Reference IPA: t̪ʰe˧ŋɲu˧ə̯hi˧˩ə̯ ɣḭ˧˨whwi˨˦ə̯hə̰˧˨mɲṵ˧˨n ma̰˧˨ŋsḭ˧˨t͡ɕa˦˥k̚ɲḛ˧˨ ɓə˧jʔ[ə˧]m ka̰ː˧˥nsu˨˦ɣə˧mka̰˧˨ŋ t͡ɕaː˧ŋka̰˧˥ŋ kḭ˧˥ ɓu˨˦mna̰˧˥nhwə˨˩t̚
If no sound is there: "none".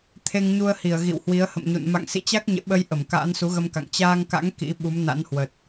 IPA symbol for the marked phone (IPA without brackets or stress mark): ə˧˩